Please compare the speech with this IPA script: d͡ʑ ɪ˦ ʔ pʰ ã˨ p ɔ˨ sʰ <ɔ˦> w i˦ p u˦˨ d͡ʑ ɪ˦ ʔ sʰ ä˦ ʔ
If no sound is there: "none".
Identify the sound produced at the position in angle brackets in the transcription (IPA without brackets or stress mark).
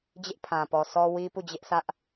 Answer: ɔ˦